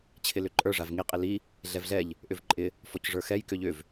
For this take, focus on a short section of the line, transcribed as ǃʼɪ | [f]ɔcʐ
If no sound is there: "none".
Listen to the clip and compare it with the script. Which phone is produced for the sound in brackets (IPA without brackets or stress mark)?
f